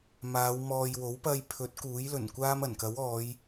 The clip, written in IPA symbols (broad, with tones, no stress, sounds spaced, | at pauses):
m aː˨˧ w m ɔː˨ j w o˨˥ w p ɐ˧ j pʰ ɵ˨˥ t̚ k uː˨˥ j l ɵ˨˩ n kʷ aː˥ m ɐ˨˩ n k ɐ˨˥ w ɔː˨˧ j